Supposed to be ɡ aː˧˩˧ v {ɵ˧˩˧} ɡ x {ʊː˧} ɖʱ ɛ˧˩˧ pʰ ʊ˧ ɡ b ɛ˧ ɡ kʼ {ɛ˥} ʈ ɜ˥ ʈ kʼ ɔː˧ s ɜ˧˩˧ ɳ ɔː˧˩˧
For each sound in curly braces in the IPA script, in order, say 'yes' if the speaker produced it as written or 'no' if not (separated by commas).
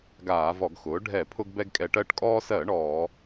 no, no, no